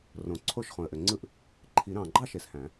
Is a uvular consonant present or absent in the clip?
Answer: present